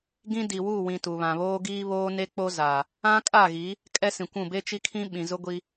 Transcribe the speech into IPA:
ɡ ĩ˦ d i˨ w u˦˨ w ĩ˨ t u˨ β ã˨ β oː˦ ɡ iː˦ β oː˦ n e˦ k͡p o˦ z a˨ | ã˦ kʼ a˦˨ ɣ i˨˦ | kʼ ɛ˦ s ĩ˨ kʷ ũ˦˨ b e˦ t͡ʃ i˦ kʰ ĩ˦ ɓ ĩ˨ z ʊ˦ ɡʷ i˦

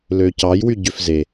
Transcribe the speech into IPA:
l ø c ɑ j w y ɟ ø f z e

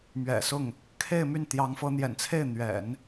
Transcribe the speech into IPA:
m ɥ ɛ̰˨˩ s ʊ˥˩ ŋ | kʰ e˥˧ ɪ̯ m y˥˩ n t̪ j ɑ˧˥ ŋ f ɤ˧˥ n̪ j ɛ̰˨˩ n t͡sʰ e˥˩ ɪ̯ n̪ ɥ ɛ̰˨˩˦ n

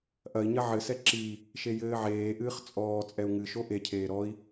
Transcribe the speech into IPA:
ʔ ɐ i̯ ɲ ɐ ʕ ɘ s ɛ ǁ i | ʃ e j ɘː ʕ eː ʔ ɨː χ t͡sʼ ɔː t͡sʼ ɛ u̯ ŋ ɨ ʃ o ʔ e cʰ eː ɾ ɔ i̯

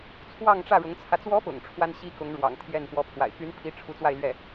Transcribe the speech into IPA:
t͡sʰ w ɑ˥˧ ŋ ʈ͡ʂ ä˥˩ ɻ ʊ˧˥ ŋ t͡sʰ ä˧ t͡s w ɔ˧˥ p ʊ̰˨˩ ŋ ʈ͡ʂʰ w a˥ n ɕ i˥ k ʊ˧˥ ŋ ɻ w ɑ̰˨˩ ŋ t̪ʰ j ɛ˥˩ n p w ɔ˧˥ pʰ w a̰˨˩ ɪ̯ p y˧˥ n pʰ i˧˥ ʈ͡ʂʰ u˧˥ t͡s w a˥˧ ɪ̯ l ɥ ɛ˥˩

